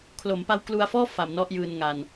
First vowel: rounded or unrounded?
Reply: rounded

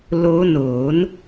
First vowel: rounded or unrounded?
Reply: rounded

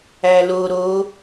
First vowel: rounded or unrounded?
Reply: unrounded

